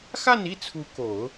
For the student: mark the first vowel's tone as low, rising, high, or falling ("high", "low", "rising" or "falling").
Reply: falling